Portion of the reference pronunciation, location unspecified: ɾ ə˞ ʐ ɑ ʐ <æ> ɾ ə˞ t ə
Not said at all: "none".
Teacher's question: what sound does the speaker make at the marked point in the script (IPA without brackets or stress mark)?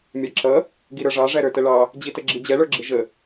æ